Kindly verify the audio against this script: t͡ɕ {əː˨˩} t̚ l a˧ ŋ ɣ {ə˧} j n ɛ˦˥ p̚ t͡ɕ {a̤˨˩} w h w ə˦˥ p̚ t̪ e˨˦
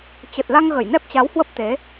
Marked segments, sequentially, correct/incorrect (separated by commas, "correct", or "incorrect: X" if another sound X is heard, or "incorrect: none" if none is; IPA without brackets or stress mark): incorrect: ə˨˩, incorrect: ə˧˩, incorrect: a˨˦